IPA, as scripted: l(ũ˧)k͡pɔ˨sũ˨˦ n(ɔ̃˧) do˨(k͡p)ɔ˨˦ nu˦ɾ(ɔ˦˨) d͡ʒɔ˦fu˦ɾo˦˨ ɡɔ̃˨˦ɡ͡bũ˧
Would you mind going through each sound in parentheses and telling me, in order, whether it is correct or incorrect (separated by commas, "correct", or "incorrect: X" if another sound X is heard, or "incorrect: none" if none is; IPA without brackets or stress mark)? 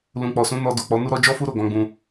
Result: incorrect: ũ˨, incorrect: ɔ˧, correct, incorrect: ɔ˦